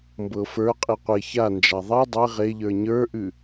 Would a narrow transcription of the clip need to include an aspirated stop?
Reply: no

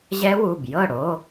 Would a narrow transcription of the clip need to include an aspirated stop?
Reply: no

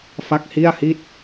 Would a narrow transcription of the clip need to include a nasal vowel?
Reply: no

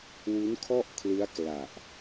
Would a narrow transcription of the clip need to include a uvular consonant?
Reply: no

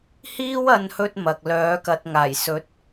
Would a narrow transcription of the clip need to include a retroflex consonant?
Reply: no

